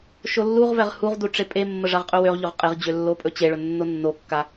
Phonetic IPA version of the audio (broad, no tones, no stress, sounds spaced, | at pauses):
ʃ o lː u ʁ v ɛ ʁ h u ʁ d u ʈ͡ʂ e pʼ e mː ə ʐ a ʁ qʼ ɵ w ø ʁ ʎ ɵ ʁ qʼ e ʁ d͡ʑ ø lː o pʼ ɵ t͡ɕ e ɭ ɵ nː o nː o kː a